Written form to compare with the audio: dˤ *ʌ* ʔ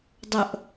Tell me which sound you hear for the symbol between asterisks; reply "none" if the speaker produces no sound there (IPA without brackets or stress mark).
ʌ